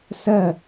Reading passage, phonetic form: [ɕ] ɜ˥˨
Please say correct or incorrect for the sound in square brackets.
incorrect